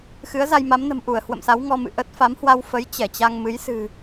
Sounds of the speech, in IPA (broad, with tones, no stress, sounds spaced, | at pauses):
x ɨ˨˦ ə̯ z a˧ j m a˨˦ m n ə̤˨˩ m ʔ u˧˩ ə̯ h w ə̰˧˨ m s a˨˦ w ŋ ɔ˧ m ɨ̰˧˨ ʔ ə˦˥ t̚ f a˨˦ m h w a˧ w f ə˨˦ j t͡ɕ ɛ˧˩ t͡ɕ a˧ ŋ m ɨ˨˦ j s ɨ̤˨˩